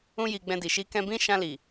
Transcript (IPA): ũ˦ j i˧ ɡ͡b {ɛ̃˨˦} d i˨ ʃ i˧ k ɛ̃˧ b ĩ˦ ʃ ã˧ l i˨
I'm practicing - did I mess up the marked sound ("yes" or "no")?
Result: yes